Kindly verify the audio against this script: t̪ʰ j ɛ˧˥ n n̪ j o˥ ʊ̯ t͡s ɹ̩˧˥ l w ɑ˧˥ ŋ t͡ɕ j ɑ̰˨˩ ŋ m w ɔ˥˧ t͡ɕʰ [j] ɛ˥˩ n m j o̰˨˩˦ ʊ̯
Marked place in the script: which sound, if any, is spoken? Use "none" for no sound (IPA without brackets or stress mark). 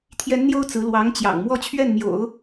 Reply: ɥ